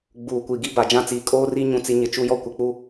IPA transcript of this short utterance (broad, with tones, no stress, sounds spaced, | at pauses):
ɡ͡b uː˨ kʷ i˨ ɡ i˦ b a˨ d͡ʒ ã˦ t͡s iː˨ kʼ oː˦ r i˦ ɲ ũ˦˨ t͡s i˦ ɲ ɪ˨ t͡ʃ u˦ j ɔ˦ kʷ ɪ˨ k͡p u˦